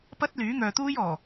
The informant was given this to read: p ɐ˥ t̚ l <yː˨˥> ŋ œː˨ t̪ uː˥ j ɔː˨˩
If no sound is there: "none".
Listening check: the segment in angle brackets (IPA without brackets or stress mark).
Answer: yː˨˥